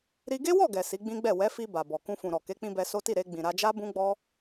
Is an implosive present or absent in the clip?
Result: absent